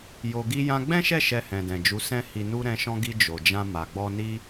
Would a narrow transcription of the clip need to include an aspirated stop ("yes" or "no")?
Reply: no